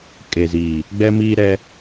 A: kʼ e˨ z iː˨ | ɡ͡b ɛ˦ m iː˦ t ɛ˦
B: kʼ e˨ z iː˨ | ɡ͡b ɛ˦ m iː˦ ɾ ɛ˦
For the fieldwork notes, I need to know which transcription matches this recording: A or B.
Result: B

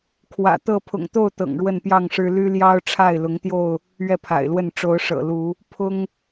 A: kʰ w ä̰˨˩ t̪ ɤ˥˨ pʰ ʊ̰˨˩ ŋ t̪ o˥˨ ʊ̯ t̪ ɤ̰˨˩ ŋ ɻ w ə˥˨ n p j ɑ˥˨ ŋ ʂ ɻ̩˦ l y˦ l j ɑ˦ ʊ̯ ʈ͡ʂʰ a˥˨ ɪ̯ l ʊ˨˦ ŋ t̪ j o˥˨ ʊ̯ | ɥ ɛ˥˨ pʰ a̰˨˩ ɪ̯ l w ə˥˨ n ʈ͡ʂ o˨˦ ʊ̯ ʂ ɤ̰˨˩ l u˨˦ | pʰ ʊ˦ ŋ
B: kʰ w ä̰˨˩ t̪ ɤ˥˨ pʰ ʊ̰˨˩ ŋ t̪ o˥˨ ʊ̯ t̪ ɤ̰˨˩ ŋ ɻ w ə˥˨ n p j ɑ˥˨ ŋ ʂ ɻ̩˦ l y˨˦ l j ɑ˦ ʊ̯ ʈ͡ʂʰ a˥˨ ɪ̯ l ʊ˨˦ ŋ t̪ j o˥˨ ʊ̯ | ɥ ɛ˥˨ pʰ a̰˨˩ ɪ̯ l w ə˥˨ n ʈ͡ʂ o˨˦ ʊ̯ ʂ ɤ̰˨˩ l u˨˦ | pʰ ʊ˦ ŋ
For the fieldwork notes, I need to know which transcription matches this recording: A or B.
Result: A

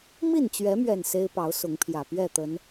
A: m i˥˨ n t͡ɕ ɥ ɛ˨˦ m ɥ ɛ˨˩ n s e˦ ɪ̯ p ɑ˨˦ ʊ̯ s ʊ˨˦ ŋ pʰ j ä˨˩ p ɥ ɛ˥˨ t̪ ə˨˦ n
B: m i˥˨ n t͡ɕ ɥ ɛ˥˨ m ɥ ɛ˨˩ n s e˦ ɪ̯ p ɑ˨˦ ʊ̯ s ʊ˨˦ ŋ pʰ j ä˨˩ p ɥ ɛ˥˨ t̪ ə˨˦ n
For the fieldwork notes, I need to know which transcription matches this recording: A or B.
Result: A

